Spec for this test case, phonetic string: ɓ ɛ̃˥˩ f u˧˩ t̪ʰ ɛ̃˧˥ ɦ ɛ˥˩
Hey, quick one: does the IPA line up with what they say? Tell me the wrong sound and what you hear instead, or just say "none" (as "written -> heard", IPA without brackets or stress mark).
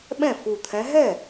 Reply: none